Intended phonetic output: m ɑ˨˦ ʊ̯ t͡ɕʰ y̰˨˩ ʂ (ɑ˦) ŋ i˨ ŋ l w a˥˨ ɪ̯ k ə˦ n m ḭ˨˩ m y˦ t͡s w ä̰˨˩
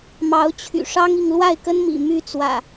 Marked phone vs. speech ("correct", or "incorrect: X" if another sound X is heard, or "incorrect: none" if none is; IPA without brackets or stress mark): correct